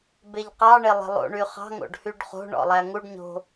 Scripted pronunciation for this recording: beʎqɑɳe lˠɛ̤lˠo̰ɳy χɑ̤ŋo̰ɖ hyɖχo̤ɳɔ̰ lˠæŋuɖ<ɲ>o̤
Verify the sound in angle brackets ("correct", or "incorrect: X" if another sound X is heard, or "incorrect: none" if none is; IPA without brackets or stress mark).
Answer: correct